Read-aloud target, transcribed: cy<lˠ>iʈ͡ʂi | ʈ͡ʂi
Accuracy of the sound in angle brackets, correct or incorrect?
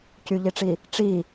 incorrect